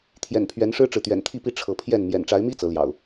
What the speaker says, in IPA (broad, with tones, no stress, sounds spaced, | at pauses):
t̪ʰ j ɛ̰˨˩ n pʰ ɥ ɛ˨˦ n ʂ ɻ̩˦ ʈ͡ʂ ɻ̩˨ t̪ ɥ ɛ̰˨˩ n t̪ʰ i˥˨ p i˥˨ ʈ͡ʂʰ ɤ˨˦ pʰ j ɛ˥˨ n m j ɛ̰˨˩ n ʈ͡ʂ a˨˦ ɪ̯ m i˦ t͡s ɤ˨˦ l j ɑ̰˨˩ ʊ̯